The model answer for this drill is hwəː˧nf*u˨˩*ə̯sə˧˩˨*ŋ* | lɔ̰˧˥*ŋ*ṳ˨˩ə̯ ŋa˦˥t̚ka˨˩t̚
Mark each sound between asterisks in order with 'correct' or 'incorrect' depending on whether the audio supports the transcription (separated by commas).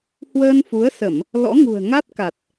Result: incorrect, incorrect, correct